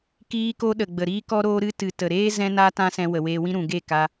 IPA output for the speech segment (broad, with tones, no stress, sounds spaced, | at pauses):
k iː˧ k o˧ ɗ ə˨ ɡ͡b ə˨ ɾ iː˦ k ɔ˦ ɾ oː˦ ɾ ɨ˦ t ɨ˨ t ə˨ ɾ eː˦ z ɛ̃˦ n a˦ t ã˦ s ɛ̃˧ w ə˨ w eː˧ w ĩ˦ ɾ ũ˨ ɡ e˦˨ k a˧